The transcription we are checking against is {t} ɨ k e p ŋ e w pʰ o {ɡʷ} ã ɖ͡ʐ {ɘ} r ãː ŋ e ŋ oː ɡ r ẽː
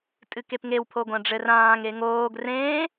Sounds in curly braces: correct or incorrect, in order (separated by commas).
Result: incorrect, correct, correct